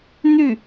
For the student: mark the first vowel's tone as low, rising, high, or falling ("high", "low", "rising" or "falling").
falling